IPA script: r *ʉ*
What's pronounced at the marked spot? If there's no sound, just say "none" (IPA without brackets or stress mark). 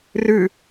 ʉ